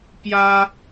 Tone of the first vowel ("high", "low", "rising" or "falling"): high